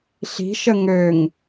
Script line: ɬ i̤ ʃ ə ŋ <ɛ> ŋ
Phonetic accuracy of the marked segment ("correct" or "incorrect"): incorrect